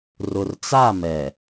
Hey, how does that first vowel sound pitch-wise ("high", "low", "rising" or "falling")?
low